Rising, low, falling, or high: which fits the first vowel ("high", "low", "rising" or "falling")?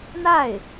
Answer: falling